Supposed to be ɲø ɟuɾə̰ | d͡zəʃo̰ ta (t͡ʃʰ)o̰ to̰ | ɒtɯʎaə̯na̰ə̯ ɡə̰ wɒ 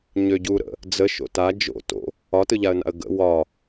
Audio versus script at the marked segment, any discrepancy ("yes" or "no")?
yes